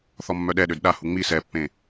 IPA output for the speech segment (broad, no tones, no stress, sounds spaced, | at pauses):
θ ɔ mː œ ɗ ɛ ɗ ø d ɗ a h u ŋ͡m i s ɛ pː ẽ